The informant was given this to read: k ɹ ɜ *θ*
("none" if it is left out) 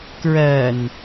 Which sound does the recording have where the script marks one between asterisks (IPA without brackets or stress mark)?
n